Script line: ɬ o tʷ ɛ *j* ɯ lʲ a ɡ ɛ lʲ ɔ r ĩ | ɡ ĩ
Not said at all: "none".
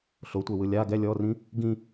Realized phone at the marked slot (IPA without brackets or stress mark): w